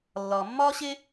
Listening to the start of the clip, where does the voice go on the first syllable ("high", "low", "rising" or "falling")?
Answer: low